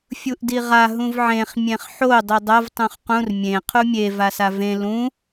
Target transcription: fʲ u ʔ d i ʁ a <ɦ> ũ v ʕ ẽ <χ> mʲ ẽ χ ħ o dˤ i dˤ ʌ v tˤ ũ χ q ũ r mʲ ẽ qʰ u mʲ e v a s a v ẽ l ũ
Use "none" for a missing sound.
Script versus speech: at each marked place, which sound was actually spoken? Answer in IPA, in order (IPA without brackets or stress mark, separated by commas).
ɦ, χ